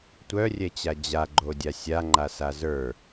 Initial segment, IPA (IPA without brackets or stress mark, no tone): tʷ